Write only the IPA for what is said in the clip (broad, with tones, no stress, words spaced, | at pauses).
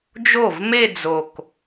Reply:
d͡ʒo˥˩vme˥˧d͡zo˨˩k